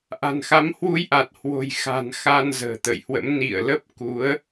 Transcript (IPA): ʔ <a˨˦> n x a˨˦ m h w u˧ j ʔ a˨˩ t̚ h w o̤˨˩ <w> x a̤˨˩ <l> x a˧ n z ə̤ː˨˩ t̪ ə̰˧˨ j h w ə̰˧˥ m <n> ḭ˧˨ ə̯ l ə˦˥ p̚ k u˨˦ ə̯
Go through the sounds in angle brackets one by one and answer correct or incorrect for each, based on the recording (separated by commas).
incorrect, incorrect, incorrect, correct